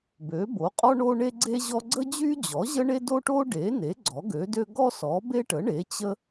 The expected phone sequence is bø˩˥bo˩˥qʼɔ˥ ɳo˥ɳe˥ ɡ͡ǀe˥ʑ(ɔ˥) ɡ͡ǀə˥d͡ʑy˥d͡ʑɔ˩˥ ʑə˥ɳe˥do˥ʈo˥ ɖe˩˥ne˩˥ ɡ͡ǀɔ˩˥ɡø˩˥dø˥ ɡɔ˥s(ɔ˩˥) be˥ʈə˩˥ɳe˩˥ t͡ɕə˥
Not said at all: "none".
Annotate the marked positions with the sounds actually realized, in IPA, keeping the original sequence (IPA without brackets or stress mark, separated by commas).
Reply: ɔ˥, ɔ˩˥